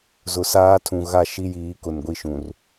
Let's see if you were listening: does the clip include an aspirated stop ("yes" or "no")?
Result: yes